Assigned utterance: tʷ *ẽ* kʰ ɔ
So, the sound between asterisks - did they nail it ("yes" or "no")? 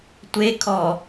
no